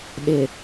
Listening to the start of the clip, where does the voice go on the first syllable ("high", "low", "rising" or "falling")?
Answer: low